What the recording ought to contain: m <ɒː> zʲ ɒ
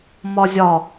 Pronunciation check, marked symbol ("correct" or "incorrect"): incorrect